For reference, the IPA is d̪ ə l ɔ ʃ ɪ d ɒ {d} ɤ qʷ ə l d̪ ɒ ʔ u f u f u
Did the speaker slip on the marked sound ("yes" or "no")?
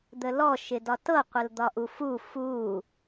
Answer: yes